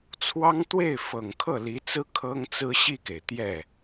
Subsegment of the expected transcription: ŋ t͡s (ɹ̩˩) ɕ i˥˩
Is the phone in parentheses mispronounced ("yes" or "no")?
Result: yes